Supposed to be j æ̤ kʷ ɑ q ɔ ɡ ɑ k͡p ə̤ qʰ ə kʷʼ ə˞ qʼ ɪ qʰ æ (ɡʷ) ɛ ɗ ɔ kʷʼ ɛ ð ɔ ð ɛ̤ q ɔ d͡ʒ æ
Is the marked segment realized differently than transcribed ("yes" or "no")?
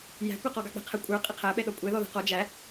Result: yes